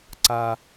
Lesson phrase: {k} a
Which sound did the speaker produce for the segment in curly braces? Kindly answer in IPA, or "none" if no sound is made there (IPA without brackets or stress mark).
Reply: ǀ